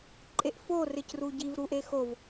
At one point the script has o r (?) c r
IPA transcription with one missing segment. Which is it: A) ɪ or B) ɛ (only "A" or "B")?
A